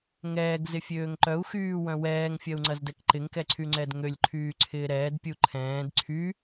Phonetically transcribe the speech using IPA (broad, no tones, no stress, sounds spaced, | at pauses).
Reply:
ŋ ɛː ɡ z ɪ fʲ øː ŋ ǃ œ u̯ x yː w œ̃ w ɛː ŋ fʲ ɐ u̯ ŋ͡ǀ ɐ z d ɛ k ǃ ɪ ŋ k ɛ ǀʰ y ŋ͡ǀ ɛ d ŋ ø lʲ ǃʰ yː ǀʰ ɪː ɾ ɛː d pʲ u ǃʰ ɛ̃ː d ǀʰ y